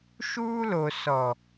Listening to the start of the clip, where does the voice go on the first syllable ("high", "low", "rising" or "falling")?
high